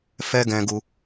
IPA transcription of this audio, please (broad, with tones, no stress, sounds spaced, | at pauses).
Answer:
f ɛ˦ ɡ ɛ̃˧ ɡ u˧